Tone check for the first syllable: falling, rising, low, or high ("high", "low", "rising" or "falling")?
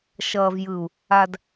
low